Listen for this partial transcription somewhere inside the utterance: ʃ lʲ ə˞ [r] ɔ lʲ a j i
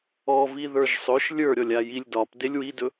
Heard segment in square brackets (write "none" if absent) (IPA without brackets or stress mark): ɾʲ